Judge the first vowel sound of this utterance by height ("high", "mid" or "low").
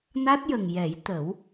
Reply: low